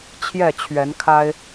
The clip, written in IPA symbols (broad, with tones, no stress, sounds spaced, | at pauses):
t͡ɕʰ j ɛ˥˨ t͡ɕʰ ɥ ɛ˨˦ n kʰ a˦ ɪ̯